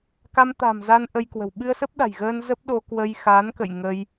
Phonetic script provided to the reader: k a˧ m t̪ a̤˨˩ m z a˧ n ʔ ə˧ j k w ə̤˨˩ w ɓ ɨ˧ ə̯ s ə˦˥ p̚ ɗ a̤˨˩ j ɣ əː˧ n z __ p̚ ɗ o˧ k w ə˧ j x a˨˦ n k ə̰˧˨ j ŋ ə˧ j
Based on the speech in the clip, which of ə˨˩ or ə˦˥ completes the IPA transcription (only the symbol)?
ə˦˥